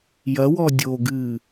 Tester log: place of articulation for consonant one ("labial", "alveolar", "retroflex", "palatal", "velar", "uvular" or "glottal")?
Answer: palatal